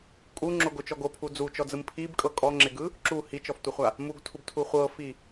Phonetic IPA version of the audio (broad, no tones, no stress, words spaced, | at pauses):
kʼuŋ͡ǁoɡot͡ʃɔ ɡopʰu d͡zut͡ʃɔd͡zɯm pʰibkʼɤ kʼɔŋ͡ǁeɡɯ | ǁu hit͡ʃɔftʷeχʷa | muɡtʰubtʰu χʷɤfi